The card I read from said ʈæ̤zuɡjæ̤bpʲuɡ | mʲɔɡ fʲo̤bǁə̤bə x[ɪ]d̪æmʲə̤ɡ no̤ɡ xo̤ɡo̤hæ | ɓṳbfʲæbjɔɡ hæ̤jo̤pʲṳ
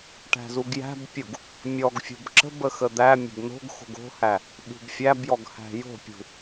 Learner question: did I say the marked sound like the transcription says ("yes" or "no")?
no